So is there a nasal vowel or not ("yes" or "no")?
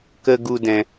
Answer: yes